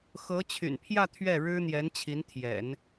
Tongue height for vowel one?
mid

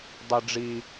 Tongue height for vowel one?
high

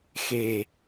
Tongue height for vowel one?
mid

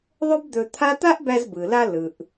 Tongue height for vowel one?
mid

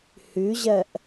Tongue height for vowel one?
high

